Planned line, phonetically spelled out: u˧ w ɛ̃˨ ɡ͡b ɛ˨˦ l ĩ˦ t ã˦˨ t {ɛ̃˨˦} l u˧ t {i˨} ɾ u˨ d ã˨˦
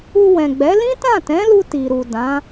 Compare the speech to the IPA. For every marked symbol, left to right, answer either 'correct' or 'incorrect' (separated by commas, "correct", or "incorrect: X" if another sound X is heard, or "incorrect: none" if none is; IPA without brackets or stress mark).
correct, correct